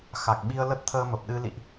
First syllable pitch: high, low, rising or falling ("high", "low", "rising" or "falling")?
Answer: low